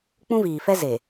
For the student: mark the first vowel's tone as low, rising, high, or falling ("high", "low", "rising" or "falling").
high